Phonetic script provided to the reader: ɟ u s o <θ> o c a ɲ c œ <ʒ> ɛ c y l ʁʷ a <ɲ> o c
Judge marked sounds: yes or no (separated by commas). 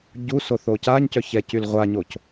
yes, no, yes